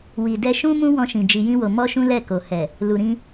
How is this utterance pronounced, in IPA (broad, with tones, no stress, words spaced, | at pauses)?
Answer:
wi˨ dɛ˧ʃũ˦ mũ˦wɔ̃˧ʃĩ˨ d͡ʒi˧jĩ˦wo˧ mɔ˦ʃũ˦ lɛ˦˨ko˨ hɛ˨ | lu˨ɾĩ˧